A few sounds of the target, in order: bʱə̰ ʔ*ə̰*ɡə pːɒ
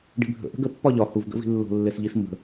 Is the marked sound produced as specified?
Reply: no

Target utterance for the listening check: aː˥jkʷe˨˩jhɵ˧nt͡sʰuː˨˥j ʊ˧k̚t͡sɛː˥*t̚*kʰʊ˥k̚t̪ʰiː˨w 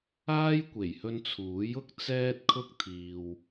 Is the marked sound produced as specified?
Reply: yes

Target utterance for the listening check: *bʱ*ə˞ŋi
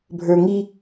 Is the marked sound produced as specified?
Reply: yes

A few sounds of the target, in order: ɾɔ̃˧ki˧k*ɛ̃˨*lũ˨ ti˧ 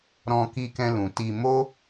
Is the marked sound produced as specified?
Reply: no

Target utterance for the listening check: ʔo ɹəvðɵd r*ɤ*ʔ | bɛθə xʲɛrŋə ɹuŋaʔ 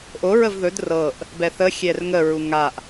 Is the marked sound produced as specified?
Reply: yes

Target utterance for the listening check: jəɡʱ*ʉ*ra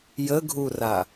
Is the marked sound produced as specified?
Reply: no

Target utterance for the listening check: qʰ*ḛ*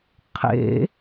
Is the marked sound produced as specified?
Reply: yes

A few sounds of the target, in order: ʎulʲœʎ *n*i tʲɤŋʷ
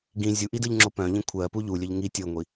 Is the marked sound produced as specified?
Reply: no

